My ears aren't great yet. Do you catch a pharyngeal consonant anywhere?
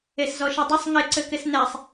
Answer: no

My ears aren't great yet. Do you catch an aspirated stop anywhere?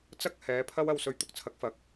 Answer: yes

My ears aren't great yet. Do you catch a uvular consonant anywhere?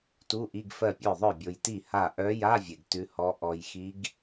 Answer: no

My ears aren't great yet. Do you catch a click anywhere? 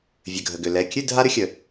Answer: no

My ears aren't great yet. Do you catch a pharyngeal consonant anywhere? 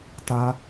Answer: no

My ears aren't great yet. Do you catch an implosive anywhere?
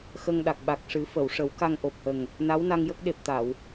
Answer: yes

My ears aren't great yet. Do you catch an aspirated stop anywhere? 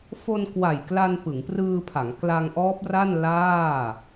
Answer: yes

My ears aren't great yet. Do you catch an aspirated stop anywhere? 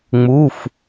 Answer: no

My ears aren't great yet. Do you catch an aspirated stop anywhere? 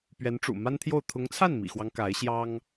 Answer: yes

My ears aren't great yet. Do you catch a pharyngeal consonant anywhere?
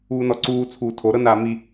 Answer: no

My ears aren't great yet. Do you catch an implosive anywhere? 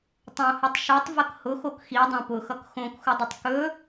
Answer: no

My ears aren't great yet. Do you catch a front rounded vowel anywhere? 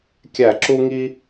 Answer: no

